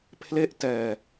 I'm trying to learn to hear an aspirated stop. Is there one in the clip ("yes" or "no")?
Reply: yes